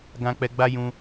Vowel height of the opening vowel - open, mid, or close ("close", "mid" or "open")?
open